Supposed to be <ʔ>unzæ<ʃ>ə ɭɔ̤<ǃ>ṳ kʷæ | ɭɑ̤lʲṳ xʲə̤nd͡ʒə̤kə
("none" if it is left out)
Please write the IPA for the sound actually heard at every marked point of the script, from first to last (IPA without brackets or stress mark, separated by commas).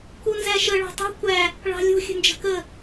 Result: k, ʃ, tˤ